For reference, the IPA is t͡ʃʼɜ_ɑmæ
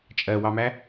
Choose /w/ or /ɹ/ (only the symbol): w